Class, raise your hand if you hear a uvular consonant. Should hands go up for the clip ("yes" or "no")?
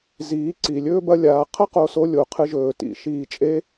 yes